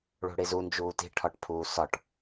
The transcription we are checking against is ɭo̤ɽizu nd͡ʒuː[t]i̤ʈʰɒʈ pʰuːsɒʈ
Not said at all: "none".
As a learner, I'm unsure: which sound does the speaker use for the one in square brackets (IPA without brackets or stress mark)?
t